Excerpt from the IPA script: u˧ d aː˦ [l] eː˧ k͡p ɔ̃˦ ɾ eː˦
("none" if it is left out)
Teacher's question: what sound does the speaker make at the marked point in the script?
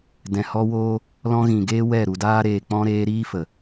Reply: ɾ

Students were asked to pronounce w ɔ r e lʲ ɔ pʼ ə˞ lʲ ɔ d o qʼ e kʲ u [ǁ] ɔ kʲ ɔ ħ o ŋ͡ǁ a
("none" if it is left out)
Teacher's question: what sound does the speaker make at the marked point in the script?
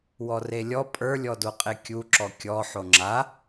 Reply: ǁ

